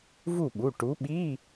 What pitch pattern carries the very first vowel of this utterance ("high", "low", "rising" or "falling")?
falling